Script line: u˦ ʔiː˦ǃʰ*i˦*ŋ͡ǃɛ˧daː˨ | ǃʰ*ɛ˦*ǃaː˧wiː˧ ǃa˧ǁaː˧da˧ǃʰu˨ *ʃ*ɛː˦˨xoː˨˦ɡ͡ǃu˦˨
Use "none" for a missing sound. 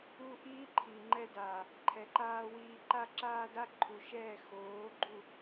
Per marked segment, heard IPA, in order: i˨, ɛ˨, ʃ

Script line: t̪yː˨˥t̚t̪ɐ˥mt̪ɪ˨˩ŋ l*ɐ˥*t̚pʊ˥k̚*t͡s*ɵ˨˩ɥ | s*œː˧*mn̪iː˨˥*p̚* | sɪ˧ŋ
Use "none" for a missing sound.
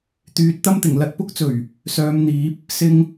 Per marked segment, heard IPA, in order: ɐ˧, t͡s, œː˨˧, p̚

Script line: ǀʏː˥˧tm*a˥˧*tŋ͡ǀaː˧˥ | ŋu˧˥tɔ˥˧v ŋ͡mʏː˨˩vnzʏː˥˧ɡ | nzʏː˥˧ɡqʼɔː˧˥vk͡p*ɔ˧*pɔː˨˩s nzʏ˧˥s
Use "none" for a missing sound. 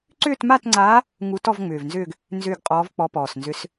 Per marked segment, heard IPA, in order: a˥˧, ɔ˧˥

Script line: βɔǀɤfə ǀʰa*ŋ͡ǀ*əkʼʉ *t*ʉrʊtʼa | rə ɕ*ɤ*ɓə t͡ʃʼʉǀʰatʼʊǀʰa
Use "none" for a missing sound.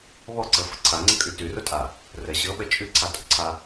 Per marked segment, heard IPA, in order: ŋ͡ǀ, t, ɤ

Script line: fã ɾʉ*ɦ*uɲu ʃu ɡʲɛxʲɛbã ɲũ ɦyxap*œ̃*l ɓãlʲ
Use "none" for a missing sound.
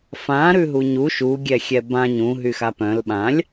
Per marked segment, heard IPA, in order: ɦ, œ̃

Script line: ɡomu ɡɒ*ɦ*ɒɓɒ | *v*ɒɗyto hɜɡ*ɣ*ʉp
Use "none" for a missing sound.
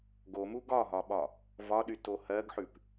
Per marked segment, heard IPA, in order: ɦ, v, ħ

